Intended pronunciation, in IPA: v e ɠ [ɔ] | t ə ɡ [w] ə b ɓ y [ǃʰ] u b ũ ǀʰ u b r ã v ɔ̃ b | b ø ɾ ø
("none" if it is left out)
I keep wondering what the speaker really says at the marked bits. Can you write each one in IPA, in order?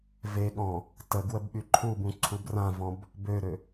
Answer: ɔ̃, w, ǃʰ

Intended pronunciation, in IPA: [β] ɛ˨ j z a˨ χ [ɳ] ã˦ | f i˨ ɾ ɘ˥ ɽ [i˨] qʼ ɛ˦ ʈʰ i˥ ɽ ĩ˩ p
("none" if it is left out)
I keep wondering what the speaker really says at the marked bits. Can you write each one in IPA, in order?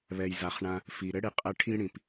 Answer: β, ɳ, i˨

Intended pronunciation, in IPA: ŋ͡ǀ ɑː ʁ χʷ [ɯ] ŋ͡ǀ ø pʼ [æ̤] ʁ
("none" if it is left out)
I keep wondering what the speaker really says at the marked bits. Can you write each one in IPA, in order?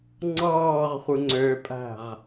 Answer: ɯ, æ̤

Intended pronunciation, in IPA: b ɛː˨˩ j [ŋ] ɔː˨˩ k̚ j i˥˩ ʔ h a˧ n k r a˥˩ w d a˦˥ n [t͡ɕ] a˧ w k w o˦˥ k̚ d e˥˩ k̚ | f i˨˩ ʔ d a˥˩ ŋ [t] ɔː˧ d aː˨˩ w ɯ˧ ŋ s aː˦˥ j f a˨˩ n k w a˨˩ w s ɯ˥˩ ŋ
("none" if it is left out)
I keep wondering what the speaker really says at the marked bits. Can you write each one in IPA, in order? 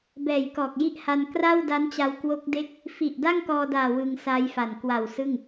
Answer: k, t͡ɕ, k

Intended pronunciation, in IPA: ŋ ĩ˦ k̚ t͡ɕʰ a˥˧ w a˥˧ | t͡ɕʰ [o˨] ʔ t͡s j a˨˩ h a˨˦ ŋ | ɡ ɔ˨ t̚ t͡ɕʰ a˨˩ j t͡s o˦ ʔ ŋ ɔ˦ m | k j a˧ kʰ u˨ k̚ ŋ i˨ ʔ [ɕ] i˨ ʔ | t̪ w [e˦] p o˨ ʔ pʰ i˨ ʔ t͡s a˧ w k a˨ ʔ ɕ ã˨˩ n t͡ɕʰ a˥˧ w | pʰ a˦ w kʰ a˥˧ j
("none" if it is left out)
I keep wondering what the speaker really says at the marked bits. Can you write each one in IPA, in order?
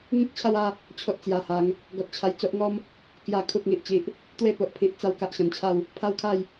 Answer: o˦, t͡ɕ, e˥˧

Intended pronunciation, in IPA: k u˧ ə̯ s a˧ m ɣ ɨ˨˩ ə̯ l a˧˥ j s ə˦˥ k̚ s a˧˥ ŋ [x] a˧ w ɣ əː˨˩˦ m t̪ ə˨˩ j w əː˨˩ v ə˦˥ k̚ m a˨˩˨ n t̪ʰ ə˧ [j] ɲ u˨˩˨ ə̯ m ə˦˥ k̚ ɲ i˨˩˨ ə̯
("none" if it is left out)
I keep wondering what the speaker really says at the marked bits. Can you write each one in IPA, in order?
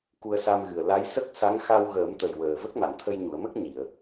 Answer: x, j

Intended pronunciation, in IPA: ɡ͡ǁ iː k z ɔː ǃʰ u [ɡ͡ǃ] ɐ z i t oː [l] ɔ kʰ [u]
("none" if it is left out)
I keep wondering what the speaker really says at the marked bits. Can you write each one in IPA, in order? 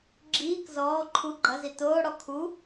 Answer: ɡ͡ǃ, ɽ, u

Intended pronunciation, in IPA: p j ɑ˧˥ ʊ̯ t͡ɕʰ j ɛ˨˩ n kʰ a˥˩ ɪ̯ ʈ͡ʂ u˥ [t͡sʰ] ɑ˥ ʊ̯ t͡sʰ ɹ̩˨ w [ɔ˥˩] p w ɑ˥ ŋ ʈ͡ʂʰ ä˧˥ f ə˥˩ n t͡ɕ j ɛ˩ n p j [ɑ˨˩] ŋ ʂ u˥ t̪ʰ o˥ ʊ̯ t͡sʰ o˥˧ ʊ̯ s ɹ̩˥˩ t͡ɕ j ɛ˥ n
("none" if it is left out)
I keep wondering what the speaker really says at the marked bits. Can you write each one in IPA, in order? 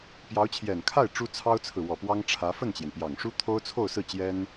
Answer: t͡sʰ, ɔ˨˩, ɑ˨˩

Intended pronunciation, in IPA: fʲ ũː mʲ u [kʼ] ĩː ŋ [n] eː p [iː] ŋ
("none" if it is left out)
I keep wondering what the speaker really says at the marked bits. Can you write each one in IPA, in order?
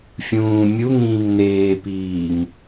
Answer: ŋ, n, iː

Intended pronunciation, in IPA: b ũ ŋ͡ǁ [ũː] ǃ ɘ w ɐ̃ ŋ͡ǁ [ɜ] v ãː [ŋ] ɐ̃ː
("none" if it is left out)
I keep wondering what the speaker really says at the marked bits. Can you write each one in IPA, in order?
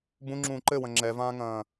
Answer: ũː, ɛ, ŋ

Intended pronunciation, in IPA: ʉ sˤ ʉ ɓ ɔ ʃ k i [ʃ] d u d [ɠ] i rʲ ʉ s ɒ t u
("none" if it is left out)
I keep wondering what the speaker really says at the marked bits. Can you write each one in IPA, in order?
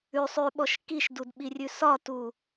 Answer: ʃ, ɓ

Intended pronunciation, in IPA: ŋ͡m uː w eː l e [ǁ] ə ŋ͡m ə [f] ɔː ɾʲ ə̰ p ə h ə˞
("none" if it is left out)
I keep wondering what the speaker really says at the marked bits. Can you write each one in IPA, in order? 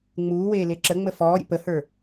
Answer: ǁ, f

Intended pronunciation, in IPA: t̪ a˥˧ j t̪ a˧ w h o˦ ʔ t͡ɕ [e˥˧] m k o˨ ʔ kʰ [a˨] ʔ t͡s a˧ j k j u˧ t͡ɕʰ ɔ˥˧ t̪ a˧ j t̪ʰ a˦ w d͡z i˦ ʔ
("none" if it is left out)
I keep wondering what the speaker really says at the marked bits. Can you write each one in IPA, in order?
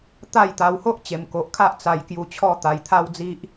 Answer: e˨˩, a˦

